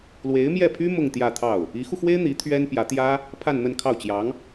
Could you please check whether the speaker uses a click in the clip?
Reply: no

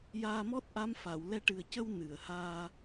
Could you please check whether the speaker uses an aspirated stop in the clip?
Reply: no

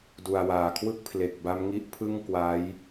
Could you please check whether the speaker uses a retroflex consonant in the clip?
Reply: no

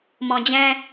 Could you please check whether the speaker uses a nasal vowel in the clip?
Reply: yes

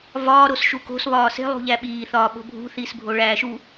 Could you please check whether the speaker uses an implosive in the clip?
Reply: yes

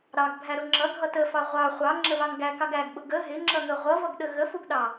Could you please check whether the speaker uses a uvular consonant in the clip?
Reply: yes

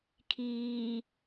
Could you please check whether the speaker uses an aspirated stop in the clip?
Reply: yes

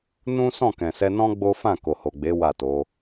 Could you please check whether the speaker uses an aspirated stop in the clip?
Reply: no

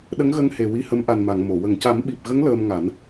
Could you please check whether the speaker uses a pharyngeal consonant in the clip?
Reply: no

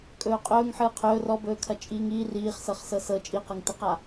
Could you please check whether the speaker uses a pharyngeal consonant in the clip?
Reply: yes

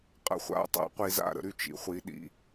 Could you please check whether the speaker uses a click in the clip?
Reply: no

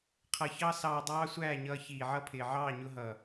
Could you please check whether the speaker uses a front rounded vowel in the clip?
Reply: no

